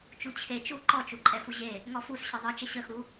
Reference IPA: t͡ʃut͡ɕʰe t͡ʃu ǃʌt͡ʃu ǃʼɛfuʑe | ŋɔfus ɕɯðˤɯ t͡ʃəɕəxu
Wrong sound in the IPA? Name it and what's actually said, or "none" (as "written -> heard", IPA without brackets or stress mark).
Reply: ʌ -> ɔ